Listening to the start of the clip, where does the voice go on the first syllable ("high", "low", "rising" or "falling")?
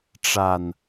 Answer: low